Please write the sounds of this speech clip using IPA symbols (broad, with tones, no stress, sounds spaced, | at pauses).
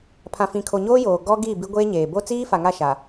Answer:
pʰ ã˨ f ĩ˨ kʰ o˨ ɲ oː˦ j oː˨ ɡ ɔ˦ ɡ i˦˨ b i˦ ɡʷ eː˦ ɲ eː˨ b o˦ t͡s iː˦ f a˨ ŋ a˦˨ ʃ a˨